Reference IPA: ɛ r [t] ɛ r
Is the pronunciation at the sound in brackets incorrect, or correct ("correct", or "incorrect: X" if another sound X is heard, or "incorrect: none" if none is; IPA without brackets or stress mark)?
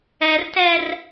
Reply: correct